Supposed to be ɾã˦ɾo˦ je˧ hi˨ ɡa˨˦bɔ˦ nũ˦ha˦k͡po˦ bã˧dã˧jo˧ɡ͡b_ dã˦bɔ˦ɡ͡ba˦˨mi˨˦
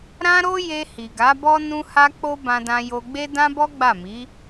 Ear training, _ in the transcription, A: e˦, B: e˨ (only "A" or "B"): A